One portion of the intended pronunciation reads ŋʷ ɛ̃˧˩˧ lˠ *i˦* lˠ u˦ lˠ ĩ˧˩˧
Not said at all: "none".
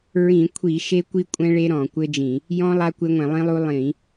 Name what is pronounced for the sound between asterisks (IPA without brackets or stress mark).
ĩ˦